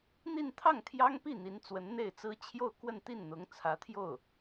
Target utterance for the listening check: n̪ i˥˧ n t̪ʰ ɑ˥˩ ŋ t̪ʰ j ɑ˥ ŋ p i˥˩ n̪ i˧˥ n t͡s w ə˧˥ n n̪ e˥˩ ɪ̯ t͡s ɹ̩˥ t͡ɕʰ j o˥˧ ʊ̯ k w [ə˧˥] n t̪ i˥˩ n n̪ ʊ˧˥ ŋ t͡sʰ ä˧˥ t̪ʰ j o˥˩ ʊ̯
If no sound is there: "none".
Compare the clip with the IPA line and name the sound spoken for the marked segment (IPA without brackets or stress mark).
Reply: ə˥˧